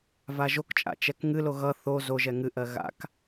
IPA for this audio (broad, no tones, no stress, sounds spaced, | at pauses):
v a ʒ o k t͡ʃʼ a̰ t͡ʃ ɛ k ŋ ɨ l o ɣ ʌ θ o z o ʒ ɛ ŋ ɨ ʔ ɜ ɣ a̰ k